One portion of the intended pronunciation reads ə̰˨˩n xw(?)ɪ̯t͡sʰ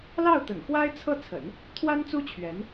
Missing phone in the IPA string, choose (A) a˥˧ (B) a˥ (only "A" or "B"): B